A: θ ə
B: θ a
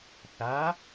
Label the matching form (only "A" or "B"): B